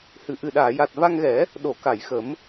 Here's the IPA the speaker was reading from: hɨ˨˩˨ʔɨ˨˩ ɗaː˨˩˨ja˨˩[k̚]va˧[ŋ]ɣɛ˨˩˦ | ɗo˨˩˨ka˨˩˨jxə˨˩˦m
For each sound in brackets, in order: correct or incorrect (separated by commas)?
incorrect, correct